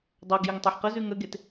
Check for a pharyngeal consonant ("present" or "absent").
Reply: present